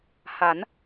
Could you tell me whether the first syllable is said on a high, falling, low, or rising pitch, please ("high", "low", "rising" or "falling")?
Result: rising